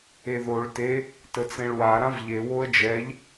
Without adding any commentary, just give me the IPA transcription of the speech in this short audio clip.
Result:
eðoɭ te | tət͡sẽɭwa ɾãvʎe woə̯d͡ʒɛʎ

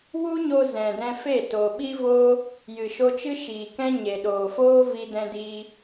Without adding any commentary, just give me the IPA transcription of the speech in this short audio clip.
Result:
wu˦ɲo˧ zɛ̃˨dɛ̃˧fe˦˨ to˨ɓi˦voː˦ | jɨ˨ʃo˧t͡ʃɨ˦ ʃiː˨kɛ̃˦ ɲe˨ɗoː˨foː˦ vi˦dɛ̃˦diː˦

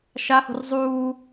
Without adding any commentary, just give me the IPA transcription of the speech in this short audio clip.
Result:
ʃaho̤r zˤuː

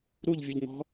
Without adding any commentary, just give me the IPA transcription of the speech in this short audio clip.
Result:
ɾuʎvʲʊʎŋɔ̤

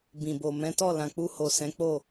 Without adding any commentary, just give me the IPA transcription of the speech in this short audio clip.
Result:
bĩ˨bo˨ mɛ̃˨˦tɔ˦˨lã˨k͡pu˧ ho˨ sɛ̃˨˦k͡po˦˨

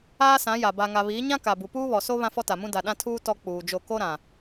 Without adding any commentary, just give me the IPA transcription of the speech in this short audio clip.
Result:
aː˦sã˨˦ja˨ ba˨ŋa˨ βiː˨˦ɲã˦ ka˨bu˨ puː˦βɔ˨so˦ βã˦fɔ˦ta˨mũ˦ da˨ɗã˦tʰuː˦ tɔ˦k͡puː˨d͡ʒo˦˨ ko˦ɾã˨

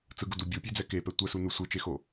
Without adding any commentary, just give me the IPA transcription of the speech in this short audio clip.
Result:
t͡sɯɡudu bʲupʲed͡zɛ kepɛ tʷəsu nusʷɯt͡ʃexo

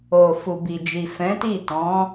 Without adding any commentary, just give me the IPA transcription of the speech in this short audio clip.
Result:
o˨fu˨bi˨d͡ʒi˨ fɛ̃˨˦ti˦˨ tɔ̃˨˦

